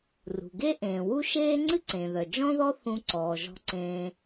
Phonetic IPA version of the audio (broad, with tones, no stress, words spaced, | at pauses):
rṳ˩ɡe˥ ʔẽː˩ wu˥ʃeː˥ ŋ͡ǀɨ˥ǀẽ˩ðœ˩ d͡ʒɔ̃˥ðɔ˥ θũ˧ ǀɔː˩ʒɔ̤˧ ǀẽː˧